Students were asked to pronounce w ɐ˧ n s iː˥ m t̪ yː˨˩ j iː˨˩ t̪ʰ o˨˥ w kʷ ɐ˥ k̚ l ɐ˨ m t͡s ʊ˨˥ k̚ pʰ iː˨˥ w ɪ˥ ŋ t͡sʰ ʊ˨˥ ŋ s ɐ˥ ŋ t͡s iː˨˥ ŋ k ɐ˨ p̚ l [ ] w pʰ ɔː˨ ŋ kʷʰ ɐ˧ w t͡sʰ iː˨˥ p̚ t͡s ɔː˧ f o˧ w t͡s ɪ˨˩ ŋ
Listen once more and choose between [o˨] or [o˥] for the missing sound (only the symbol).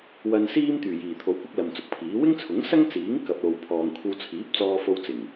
o˨